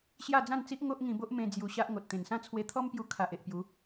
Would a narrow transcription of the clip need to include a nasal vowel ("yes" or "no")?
yes